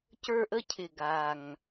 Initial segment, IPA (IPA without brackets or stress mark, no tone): c